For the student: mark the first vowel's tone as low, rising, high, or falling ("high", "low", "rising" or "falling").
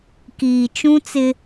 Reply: low